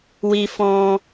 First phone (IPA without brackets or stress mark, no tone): w